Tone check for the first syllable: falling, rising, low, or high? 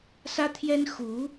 high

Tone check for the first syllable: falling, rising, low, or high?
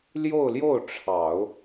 falling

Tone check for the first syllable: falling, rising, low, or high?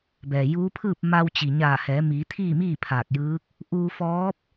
low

